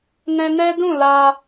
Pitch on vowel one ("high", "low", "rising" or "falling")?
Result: high